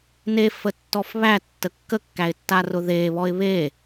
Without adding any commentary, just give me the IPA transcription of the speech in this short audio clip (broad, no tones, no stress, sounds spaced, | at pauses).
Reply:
n e f ə tː ɔ f β æ tː ə kː ə kː æ ɪ̯ tː a r ʊ ð e β ɔ ɪ̯ β e